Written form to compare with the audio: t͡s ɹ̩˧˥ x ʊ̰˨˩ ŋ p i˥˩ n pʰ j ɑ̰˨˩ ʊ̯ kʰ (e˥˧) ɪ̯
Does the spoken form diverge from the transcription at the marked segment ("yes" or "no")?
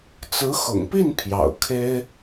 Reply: yes